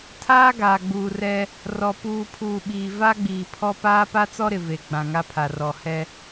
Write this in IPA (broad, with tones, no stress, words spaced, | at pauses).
tʰaː˦ ɡaː˨ɡ͡buː˨rɛ˦ | rɔ˨ puː˨pʰuː˨ ɓiː˨ va˦ɡ͡biː˨pʰɔ˦ paː˦pa˦t͡sɔ˦ɾɪ˨ ve˨ ɡ͡bã˨ŋa˦pʰa˨rɔ˨ hɛ˦